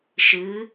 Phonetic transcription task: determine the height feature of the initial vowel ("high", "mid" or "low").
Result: high